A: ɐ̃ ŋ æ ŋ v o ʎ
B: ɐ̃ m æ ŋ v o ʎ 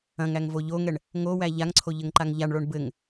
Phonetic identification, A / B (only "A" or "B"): A